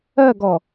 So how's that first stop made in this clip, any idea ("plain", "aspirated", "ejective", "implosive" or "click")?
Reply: plain